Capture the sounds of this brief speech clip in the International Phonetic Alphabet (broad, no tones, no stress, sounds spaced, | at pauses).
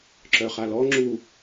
ǁ œ χ a l ɔ ŋ͡ǁ u